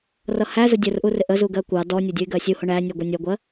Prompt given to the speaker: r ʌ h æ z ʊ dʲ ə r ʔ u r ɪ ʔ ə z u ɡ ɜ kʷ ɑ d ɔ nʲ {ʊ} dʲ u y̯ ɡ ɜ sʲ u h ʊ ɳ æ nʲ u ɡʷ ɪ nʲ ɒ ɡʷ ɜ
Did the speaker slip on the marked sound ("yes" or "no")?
yes